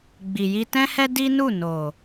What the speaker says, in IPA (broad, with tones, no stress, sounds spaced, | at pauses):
ɡ͡b i˨ j i˧ t ɛ̃˦ h ɛ˦ d i˦ n u˦˨ n o˨